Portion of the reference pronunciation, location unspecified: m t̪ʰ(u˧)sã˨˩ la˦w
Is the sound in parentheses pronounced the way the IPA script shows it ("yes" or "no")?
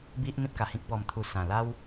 yes